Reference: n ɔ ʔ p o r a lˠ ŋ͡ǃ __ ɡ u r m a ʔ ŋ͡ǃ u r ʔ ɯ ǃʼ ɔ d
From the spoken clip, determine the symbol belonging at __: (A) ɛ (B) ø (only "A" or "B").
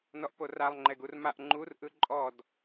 A